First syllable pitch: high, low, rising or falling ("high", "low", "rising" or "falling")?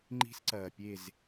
high